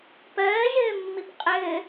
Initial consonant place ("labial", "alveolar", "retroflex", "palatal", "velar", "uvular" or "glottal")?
labial